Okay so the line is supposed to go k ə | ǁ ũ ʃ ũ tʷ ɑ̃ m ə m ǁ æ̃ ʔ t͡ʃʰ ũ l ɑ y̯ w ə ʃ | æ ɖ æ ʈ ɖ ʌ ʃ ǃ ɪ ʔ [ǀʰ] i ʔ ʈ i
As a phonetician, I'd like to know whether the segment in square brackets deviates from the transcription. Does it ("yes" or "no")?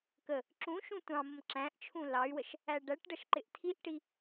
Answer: yes